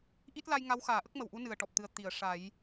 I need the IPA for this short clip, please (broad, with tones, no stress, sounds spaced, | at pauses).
ʔ i˦˥ t̚ l a˧ j ŋ a˧˥ w x aː˨˩˦ ʔ ə˦˥ k̚ m ə˨˩ w ʔ u˧˥ n ɨ˨˩ ə̯ ʈ ɔ˨˩ p̚ t̪ ɨ˨˩ ə̯ t̪ i˨˩˨ ə̯ ʂ a˨˩˦ j